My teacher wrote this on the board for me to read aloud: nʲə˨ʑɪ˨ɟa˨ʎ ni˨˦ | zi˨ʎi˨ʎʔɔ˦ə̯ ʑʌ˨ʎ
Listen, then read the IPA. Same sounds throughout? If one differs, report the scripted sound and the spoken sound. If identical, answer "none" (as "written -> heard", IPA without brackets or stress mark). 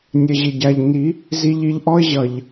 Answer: none